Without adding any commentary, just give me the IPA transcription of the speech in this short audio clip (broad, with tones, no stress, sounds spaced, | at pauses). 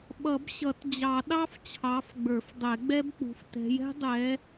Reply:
ɓ ʌ˨˩˦ b ɕ ʌ˨˩˦ t d͡ʑ ɑ˨˩˦ ɗ ɑ˦˥ f t͡ɕʰ ɑ˨˦ f ɡ͡b ə˞˨˩˦ f dˤ ɛ˨˩˦ ɡ͡b ɛ˦˥ b k͡p ṳ˨˦ f t ɛ̤˨˦ j ɛ̤˦˥ dˤ ɛ˨˦